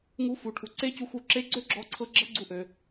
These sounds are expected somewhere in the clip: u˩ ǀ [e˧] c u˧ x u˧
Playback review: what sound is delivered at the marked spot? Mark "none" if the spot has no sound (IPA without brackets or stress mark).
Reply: e˥